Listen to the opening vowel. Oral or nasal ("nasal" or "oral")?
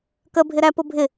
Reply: oral